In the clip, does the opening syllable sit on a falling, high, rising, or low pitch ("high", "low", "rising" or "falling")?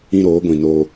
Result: high